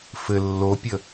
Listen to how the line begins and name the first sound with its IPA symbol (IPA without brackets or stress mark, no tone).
f